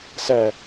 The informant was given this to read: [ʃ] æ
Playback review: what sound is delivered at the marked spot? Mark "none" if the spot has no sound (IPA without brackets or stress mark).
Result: s